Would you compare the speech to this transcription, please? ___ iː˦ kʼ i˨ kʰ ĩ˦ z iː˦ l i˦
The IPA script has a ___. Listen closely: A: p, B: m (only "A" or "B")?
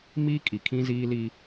B